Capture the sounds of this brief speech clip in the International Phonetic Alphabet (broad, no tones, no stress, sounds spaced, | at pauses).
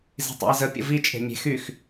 z i̤ tˤ ḭ ə̯ z ə pʲ ə̰ v i t͡ʃʼ e̤ mʲ e̤ x y x